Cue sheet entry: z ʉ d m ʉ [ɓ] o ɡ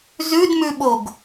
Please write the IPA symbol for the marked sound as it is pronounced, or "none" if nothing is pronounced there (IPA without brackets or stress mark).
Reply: ɓ